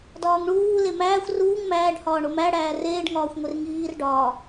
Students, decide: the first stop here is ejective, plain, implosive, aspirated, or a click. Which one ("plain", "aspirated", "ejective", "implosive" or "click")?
plain